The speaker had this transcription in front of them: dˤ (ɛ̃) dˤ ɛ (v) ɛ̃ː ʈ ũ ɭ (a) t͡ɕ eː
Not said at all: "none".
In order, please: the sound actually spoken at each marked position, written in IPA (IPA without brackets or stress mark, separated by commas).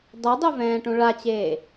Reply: ɛ, v, a